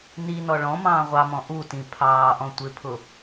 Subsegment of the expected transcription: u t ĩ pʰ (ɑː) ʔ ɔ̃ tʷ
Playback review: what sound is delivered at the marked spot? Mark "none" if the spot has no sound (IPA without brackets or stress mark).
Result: ɑː